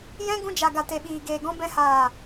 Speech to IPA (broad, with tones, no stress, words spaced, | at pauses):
jɛ̃˧ ɡũ˧d͡ʒa˨ ɡa˨te˨ɓiː˨ ɡeː˨ɡɔ̃˧bɛ̃˧ haː˨